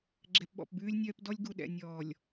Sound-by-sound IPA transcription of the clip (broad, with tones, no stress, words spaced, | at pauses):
ɡ͡ǁɛ˨pɓɔ̰˨pbʉː˦lʲnʲœː˦p dɔ˦lʲɡu˨ɗɛ̰˨ nʲɔː˨lʲ